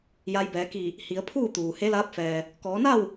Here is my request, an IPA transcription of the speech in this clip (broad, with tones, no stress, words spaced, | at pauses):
ja˧jbɛː˩˧ki˧˩ | hi˩˧ə̯pʰuː˥˨t̪uː˩ he˧˥laː˧˥p̚fɛː˩ | kɔː˩˧na˥˨w